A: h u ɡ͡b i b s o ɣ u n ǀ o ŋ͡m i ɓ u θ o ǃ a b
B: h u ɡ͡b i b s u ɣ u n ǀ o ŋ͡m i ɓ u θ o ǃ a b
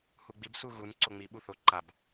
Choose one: B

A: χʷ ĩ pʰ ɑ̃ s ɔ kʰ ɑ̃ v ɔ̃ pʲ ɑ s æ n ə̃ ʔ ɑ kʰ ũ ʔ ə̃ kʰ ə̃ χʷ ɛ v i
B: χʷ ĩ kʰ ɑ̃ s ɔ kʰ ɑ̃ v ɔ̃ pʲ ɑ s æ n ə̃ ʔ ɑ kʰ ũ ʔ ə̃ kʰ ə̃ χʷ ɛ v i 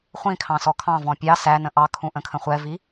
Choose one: B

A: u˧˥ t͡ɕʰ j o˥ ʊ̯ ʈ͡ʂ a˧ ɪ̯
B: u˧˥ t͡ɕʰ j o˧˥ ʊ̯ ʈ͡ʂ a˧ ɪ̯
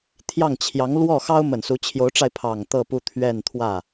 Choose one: B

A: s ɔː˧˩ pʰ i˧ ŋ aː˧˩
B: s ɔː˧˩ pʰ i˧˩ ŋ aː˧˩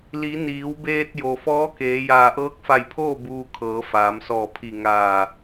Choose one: B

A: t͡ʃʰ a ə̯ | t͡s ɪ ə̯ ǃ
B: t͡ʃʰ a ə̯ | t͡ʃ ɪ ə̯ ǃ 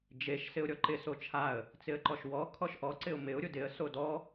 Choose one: A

